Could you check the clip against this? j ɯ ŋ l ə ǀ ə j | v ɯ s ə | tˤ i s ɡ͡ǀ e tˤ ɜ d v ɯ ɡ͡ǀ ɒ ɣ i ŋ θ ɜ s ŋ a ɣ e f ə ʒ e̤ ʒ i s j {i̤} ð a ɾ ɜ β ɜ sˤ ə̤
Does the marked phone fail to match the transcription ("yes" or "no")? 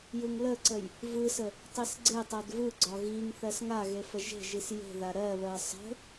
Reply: yes